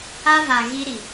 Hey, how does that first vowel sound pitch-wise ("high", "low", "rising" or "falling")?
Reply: high